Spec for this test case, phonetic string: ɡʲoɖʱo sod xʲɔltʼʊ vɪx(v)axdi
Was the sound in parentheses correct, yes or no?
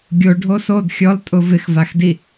yes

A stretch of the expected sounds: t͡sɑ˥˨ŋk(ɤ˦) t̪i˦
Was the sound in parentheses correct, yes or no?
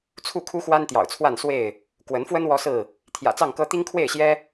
yes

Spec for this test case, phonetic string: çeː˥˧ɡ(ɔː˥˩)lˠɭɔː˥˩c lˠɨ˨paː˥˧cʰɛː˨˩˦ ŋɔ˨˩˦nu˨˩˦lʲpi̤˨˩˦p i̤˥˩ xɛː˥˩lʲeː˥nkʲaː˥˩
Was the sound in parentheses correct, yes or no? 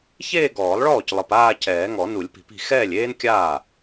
no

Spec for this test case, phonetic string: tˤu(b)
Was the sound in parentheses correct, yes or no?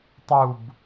yes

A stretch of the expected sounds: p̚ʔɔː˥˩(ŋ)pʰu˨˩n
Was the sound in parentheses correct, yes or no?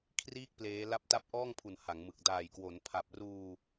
yes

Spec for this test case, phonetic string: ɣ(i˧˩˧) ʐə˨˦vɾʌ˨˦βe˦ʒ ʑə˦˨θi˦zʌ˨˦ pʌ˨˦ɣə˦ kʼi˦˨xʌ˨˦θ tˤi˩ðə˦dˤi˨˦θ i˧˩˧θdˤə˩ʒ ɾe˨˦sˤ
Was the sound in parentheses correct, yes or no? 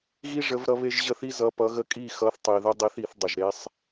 no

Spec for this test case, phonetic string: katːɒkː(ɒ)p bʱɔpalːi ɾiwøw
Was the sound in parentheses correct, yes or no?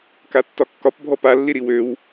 yes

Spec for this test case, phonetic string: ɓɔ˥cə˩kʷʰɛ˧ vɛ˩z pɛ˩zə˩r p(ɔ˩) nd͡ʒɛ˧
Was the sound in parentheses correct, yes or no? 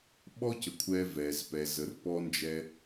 no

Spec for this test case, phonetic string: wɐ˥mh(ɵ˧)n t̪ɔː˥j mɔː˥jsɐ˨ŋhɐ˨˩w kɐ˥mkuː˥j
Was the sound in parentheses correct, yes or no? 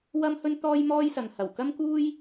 no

